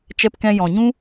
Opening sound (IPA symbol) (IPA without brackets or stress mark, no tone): t͡ʃ